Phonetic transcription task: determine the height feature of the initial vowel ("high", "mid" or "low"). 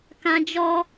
low